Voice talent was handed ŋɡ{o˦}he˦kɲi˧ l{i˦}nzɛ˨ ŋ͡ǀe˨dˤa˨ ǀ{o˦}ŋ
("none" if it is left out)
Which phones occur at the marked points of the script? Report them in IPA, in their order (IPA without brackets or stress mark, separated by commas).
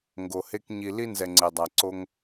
o˨, i˦, o˦